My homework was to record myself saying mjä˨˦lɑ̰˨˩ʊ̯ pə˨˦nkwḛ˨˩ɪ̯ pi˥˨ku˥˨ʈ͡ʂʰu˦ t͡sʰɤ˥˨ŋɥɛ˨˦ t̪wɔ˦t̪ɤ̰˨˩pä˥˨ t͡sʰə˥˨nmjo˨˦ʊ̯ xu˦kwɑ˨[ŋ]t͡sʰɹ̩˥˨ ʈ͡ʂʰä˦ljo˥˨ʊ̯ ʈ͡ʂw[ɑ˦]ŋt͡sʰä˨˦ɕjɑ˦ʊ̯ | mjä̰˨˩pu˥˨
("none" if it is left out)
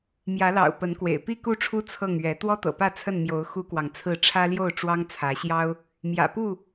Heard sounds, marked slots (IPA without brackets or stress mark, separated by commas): ŋ, ɑ˦